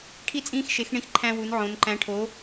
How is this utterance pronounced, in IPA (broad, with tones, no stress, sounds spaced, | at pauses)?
ʈʰ i˥ t͡sʼ ĩː˥ x ʃ e˧˥ x ɳ ĩ˥ x ǃʰ æ̃˥ w u˧˥ n ʕ õ˧˥ n ǃ æ̃˧˥ ʈʰ o˧˥